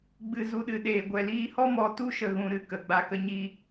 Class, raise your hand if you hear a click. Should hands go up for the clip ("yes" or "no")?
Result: no